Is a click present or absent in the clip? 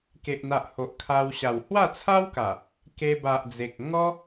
absent